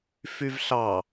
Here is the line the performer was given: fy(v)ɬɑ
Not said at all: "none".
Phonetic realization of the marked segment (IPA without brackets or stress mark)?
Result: v